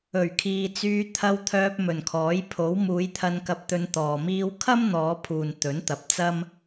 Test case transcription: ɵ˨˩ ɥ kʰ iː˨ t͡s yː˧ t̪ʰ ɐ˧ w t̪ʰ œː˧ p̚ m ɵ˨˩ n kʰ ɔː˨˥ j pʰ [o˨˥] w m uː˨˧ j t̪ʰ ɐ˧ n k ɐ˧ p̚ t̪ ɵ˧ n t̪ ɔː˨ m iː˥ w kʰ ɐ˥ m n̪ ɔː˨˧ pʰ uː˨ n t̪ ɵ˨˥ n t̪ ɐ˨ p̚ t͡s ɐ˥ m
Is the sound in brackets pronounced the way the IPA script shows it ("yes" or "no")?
yes